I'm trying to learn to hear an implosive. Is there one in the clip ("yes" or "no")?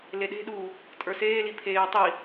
yes